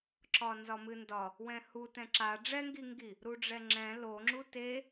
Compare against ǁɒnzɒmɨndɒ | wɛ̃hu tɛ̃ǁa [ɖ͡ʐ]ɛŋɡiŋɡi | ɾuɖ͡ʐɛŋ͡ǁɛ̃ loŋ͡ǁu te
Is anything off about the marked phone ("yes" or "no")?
no